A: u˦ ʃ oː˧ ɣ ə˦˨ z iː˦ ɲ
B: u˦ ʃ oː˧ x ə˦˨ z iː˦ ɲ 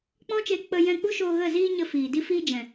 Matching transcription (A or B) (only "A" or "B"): A